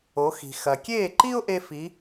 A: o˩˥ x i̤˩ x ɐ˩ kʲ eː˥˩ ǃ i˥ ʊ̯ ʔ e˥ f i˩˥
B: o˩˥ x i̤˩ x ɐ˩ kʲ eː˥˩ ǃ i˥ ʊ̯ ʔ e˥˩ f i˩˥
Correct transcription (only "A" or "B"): A